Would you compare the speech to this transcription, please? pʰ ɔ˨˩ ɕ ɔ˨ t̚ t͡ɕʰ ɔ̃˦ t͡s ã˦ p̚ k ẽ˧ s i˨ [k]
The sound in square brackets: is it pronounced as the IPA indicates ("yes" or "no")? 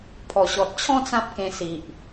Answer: no